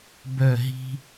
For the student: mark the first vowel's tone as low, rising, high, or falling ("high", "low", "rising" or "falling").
falling